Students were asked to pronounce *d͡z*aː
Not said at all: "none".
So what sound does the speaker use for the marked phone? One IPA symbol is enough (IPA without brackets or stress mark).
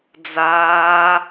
d͡z